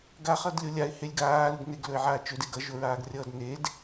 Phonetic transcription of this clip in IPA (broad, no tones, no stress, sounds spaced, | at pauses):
ɡ a χ ʌ d lʲ o lʲ a ɪ̯ h e lʲ ɡ aː l u ɡ n e ɡ l ɵ ɪ̯ ʕ aː t͡ʃ ɵ d e ɡ ʌ ʒ o ɹ aː ɡ rʲ ʌː d n e d